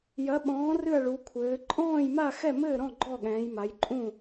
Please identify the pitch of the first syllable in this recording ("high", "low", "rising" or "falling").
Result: rising